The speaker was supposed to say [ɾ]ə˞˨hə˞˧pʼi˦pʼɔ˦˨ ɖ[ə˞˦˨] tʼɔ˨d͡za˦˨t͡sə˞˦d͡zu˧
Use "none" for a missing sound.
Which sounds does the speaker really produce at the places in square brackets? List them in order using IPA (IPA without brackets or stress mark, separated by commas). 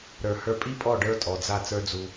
ɾ, ə˞˦